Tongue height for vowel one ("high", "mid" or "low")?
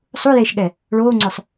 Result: high